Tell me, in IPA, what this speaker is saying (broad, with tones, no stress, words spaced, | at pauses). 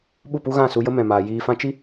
ɓu˦˨pu˦ɣã˦˨su˧ jə˦mɛ̃˨maː˨ jiː˧fã˦ t͡ʃi˦